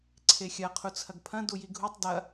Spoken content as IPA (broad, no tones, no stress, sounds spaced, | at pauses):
ǀʰ e xʲ ɐ qʰ u t͡sʰ ɐ ɡ pʰ ɐ̃ d u j i ɡʱ u tˤ d ɐ